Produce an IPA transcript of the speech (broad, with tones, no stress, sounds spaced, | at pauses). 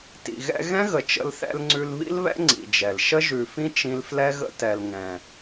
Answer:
t ḭ˨ ɣ ɛ̰˧ ɣ ɛ̃˦ ɣ ə˨ t͡ʃ ə̰˦ l θ ɛ̰˦ l ŋ͡ǀ ʉ˧ l β ḭ˦ l β ɛ̰˦ ŋ͡ǀ ḭ˨ d͡ʒ ɛ˨ l ʃ ə˦ ʒ ʉ˨ f ĩ˦ t͡ʃ ĩ˦ l f l ɛ˦ ɣ ə̰˦ t ɛ˨ l ŋ ɛ̃˨